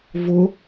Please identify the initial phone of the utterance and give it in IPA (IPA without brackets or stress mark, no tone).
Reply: v